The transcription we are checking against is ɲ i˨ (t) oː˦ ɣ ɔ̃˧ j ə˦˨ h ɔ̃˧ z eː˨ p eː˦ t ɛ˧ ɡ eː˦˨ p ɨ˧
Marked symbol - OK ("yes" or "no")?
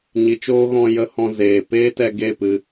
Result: no